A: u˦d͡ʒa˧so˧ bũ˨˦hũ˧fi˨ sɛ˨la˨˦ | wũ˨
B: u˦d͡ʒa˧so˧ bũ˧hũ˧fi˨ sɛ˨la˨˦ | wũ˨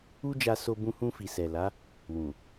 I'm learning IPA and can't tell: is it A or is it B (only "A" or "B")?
B